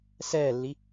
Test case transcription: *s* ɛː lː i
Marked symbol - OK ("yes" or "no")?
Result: yes